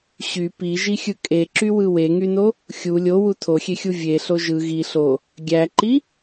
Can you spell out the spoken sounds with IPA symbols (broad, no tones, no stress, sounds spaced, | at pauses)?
ɕ y p i ʒ i xʲ ɯ kʼ e ǁ y w ɯ w e ŋ y n o | xʲ u lʲ o w u tʰ o xʲ e xʲ u vʲ e ɬ o ʒ ɯ ɣ i ɬ o | ɡʲ æ ǃ i